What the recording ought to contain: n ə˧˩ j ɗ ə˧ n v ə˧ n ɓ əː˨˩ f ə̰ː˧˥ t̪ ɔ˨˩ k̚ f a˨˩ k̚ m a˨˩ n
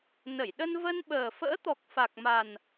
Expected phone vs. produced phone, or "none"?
none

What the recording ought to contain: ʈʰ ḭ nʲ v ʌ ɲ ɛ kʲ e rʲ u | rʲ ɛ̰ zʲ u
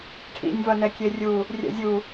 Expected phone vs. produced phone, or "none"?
ɲ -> n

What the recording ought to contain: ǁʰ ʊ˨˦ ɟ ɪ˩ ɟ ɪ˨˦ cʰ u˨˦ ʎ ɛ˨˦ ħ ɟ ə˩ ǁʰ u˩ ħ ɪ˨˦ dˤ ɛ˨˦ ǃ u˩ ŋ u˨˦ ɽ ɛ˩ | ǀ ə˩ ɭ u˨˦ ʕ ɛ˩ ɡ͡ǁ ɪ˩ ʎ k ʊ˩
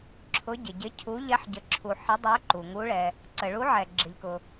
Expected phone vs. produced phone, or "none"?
ɽ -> ɭ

